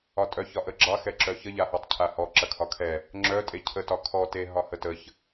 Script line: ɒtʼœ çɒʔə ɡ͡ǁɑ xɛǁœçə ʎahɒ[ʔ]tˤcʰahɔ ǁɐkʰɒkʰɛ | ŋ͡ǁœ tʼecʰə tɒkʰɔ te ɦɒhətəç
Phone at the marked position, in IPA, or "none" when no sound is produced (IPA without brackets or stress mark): none